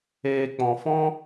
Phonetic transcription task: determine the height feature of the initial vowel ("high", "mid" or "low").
mid